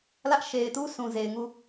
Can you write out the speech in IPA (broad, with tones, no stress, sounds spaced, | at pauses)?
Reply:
l ä˦ ʔ ʃ e˨ ɪ̯ t u˦ s ũ˨ z e˨ ɪ̯ ŋ u˦˨